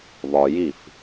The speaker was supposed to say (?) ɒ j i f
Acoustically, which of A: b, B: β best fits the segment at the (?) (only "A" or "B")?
B